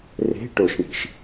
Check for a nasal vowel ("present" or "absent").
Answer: absent